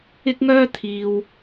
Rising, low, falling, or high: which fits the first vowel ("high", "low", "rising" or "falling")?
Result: high